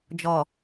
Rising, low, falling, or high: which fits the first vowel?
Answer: low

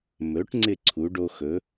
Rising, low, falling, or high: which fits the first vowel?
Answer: rising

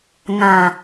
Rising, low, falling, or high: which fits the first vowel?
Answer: low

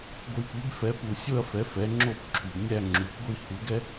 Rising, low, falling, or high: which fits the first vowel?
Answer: low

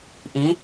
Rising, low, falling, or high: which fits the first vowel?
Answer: rising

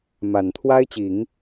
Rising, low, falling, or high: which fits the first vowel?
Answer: low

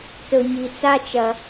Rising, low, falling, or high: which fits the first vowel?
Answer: low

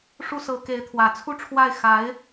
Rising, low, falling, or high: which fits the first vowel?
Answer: high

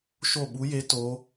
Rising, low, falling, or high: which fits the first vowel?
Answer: falling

